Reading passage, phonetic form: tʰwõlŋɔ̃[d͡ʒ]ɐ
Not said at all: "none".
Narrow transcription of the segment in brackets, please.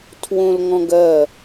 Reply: ɡ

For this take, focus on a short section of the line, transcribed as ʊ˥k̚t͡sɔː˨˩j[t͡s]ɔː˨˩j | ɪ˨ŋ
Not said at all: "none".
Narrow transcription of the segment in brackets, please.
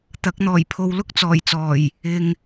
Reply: t͡s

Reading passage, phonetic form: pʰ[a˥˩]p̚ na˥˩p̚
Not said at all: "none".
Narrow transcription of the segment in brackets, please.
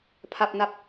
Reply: a˥˩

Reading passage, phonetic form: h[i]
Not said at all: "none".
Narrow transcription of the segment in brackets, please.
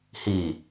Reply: i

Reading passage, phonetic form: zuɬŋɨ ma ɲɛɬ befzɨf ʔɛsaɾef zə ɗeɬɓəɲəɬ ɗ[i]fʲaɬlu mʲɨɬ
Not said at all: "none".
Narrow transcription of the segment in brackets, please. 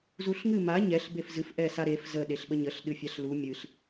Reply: ɨ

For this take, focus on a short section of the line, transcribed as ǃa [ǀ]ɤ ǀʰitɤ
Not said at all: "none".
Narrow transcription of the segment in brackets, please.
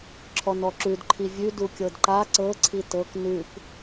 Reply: ǀ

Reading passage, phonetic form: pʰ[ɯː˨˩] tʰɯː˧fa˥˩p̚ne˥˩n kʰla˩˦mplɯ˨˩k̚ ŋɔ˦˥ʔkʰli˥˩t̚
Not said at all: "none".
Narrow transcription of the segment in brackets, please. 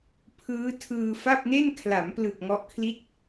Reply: ɯː˦˥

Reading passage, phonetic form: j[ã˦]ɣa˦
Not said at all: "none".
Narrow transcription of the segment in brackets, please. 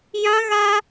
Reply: ã˦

